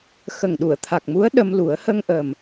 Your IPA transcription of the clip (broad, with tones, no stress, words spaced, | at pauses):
xə˨˩ŋɗu˨˩˨ə̯t̪ʰa˨˩k̚mu˧˥ə̯ ɗə˧mlu˨˩˦ə̯ hə˧ŋʔə˨˩m